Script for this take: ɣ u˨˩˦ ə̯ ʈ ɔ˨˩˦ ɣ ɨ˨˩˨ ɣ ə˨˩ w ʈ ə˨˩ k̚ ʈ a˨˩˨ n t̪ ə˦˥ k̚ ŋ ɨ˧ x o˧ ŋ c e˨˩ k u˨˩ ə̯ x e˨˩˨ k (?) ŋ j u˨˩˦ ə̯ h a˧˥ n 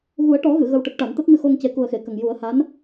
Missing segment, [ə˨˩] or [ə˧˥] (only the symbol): ə˨˩